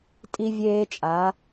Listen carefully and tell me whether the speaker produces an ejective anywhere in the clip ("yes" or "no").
yes